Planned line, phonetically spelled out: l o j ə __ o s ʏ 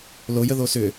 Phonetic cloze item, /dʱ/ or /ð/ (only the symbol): ð